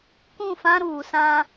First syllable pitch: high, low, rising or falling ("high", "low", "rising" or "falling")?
falling